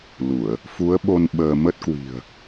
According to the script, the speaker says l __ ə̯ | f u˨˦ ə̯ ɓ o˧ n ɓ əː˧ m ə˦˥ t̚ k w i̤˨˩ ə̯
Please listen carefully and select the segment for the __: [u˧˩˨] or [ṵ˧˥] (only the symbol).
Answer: u˧˩˨